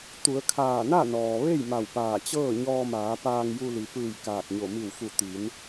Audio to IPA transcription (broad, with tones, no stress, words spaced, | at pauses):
t̪u˩˧ə̯kʰaː˧˩na˥˨nɔː˩ ʋe˥˨jma˧˩wpaː˧˩ t͡ɕɤː˥˨ɲɔː˧maː˩˧ paː˧ŋju˧li˩ pɯː˧˩j kaː˧˩k̚ɲo˧˩ mi˧˩wfu˧˩ t̪i˩˧n